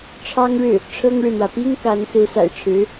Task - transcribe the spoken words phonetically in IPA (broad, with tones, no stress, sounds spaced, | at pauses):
ʈ͡ʂʰ ɑ˥ ŋ ɻ ɻ̩˥˩ | ʈ͡ʂʰ ɤ˥ ŋ ɻ ɻ̩˨ n̪ w ä˩ p i˥ ŋ k a˧˥ n s ɹ̩˧˥ s a̰˨˩ ɪ̯ ʈ͡ʂʰ ɻ̩˧˥